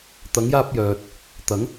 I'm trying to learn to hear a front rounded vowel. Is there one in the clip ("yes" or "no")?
yes